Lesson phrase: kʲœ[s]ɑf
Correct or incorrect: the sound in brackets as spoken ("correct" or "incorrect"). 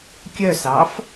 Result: correct